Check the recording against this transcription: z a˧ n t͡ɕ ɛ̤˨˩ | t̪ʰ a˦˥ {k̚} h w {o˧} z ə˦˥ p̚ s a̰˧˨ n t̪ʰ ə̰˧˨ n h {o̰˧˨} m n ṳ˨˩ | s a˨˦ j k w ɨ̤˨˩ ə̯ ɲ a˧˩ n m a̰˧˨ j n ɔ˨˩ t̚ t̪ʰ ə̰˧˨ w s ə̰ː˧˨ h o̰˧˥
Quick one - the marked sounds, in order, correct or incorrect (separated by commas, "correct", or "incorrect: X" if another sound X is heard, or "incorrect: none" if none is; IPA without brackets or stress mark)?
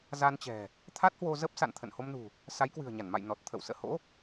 incorrect: t̚, correct, incorrect: o˧